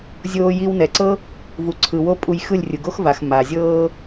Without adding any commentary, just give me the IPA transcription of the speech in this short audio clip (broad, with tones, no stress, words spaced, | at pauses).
zʲoː˧ji˧wnɛ˨ǀɤ˦ | vu˨ǀʰɯ˨wo˦pʼu˧j xɯ˦˨lʲrʲɯ˨ ɡo˦xva˨x ma˨ zʲɤː˧